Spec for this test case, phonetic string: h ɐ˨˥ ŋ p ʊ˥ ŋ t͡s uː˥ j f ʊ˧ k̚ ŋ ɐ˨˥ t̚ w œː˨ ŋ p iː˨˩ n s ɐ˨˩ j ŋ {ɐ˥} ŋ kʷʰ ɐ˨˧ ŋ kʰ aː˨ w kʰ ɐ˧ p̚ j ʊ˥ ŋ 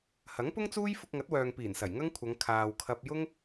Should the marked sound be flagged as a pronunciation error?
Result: no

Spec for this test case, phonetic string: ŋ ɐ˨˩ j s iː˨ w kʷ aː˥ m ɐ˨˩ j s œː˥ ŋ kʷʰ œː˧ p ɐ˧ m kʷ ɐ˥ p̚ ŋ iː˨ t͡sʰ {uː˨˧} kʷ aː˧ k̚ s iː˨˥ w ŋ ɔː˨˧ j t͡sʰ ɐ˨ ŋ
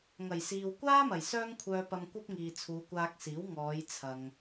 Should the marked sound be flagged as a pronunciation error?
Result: no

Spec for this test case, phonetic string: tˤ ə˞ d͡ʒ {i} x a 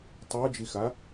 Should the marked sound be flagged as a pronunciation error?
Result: no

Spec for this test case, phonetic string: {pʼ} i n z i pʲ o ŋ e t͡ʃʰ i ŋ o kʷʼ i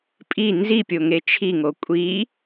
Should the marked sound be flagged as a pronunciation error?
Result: no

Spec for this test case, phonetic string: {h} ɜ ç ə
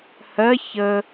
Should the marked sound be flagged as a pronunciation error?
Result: no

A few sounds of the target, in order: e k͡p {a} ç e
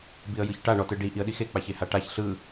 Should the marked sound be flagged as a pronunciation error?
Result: no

